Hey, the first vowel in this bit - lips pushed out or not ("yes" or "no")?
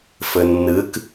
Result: no